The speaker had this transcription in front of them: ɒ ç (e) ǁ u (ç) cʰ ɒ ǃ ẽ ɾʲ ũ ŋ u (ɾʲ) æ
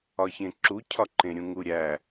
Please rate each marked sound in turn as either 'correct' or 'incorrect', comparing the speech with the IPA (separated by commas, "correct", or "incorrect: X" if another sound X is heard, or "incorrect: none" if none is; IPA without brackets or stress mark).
incorrect: ẽ, incorrect: none, correct